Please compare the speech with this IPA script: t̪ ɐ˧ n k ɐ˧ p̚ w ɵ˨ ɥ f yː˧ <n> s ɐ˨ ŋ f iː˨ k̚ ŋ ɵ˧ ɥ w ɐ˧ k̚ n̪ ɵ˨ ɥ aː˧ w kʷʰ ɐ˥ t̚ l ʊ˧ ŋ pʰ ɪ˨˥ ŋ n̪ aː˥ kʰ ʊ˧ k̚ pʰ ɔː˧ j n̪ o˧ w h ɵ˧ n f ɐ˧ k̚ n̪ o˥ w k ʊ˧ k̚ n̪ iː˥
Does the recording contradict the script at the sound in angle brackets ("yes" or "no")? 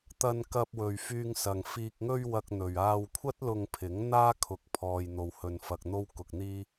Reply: yes